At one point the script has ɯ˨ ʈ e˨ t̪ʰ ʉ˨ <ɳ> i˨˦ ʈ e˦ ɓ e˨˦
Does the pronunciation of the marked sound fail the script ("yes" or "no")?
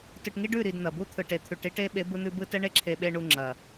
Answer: yes